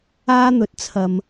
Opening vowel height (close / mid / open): open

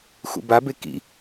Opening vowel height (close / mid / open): close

